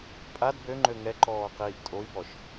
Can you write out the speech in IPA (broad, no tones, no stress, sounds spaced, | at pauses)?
pʼ a d b ø ŋ͡ǃ ø ŋ ɛ ǃ ɔː q iː ʔ tʼ o i̯ b ɔ ʃ